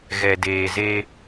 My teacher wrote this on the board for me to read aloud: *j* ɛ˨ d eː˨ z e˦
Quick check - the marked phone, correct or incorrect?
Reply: incorrect